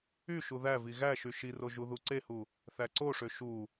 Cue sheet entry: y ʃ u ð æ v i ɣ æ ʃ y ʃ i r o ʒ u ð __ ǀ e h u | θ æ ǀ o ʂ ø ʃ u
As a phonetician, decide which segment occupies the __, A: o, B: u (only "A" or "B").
B